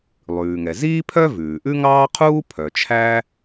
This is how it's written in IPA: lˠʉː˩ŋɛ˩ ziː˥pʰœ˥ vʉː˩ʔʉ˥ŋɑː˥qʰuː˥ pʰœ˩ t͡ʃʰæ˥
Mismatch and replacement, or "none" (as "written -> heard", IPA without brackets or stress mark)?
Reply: none